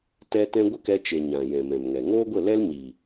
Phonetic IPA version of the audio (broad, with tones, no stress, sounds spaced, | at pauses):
t ɛ˦ t ɛ̃˦ ɡʷ ə˦ k ɛ˧ t͡ʃ e˨ ɲ ã˨ j ɛ̃˨ m ɛ̃˨ m ŋ ɛ˨ ŋ oː˦ ɡʷ ə˦˨ l ɛ˦ l ɲ iː˨